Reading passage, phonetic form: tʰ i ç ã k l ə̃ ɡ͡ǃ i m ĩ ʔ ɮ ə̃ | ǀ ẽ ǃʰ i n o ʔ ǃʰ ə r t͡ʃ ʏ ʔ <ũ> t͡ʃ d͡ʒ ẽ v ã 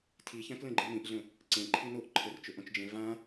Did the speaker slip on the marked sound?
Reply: yes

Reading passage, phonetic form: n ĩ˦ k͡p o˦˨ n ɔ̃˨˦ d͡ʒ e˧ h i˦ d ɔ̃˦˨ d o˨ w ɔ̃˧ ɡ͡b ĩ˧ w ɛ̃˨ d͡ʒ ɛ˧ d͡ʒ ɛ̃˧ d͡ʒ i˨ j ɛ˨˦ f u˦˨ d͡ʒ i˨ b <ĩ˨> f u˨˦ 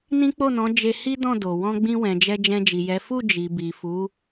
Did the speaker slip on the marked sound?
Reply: yes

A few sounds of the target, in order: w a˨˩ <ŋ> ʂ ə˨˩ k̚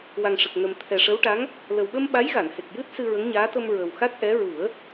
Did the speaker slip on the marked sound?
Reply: no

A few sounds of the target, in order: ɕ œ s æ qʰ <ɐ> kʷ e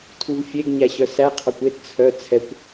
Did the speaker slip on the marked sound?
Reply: yes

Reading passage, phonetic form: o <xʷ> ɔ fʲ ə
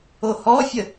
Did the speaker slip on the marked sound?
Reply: yes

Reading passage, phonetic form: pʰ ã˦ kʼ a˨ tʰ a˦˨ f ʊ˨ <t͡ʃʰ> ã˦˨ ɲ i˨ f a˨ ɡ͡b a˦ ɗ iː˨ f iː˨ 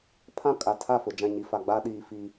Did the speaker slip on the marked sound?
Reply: yes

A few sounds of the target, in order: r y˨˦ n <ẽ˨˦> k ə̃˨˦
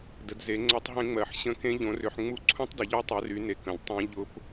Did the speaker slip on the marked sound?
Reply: yes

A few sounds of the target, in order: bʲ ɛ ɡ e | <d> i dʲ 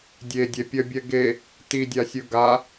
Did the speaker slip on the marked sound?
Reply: yes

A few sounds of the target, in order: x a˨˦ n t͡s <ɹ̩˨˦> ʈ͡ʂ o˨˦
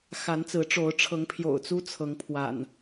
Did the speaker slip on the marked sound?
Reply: no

